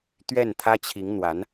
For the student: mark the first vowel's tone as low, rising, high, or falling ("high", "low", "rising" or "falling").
falling